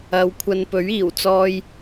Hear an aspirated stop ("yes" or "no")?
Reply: yes